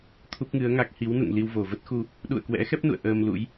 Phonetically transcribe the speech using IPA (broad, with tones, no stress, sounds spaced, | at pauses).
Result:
t̪ʰ u˦˥ p̚ ŋ ɨ˨˦ ə̯ ŋ a˦˥ k̚ h i˨˦ w n ṵ˧˨ ŋ l i˧ w v o˧˩ v ə˦˥ t̚ x u˧ | ɗ ṵ˧˨ ə̯ k w ɛ̰˧˥ x ɛ˦˥ p̚ n ṵ˧˨ ə̯ ʔ əː˧ m l ṵ˧˥ j